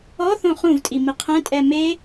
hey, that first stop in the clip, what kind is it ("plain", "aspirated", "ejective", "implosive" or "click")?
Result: ejective